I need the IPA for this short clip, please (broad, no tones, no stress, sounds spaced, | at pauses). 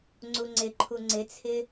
ŋ͡ǀ u ŋ͡ǀ ɪ ǃʰ u ŋ͡ǀ ɪ t͡sʰ ɪ